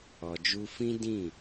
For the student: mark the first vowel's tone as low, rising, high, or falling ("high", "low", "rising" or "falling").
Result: low